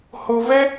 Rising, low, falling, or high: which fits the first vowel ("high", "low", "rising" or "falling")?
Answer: low